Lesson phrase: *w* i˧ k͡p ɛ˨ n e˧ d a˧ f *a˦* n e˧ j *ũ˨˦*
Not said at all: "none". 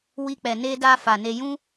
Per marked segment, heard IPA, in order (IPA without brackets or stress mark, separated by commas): w, a˨, ũ˦